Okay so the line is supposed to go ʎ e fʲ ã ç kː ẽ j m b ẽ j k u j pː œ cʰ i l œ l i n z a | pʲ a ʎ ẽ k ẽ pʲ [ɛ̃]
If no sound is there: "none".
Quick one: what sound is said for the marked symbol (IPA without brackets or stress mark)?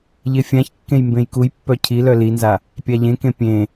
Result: ẽ